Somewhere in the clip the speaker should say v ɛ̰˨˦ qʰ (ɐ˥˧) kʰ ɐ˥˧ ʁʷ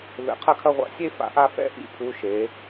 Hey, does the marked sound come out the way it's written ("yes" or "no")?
yes